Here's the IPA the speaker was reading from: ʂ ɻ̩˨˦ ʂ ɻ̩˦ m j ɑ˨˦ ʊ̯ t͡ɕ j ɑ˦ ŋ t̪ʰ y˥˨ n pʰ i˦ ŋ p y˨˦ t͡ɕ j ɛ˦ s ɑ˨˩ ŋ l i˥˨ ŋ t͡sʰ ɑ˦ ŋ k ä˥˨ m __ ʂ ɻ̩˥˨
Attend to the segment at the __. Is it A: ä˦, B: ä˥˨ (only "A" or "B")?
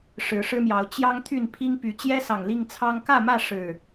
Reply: B